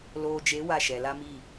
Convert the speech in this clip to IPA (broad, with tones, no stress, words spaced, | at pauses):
loː˨d͡ʒe˨˦ wa˦˨ʃɛ˨la˦mi˦˨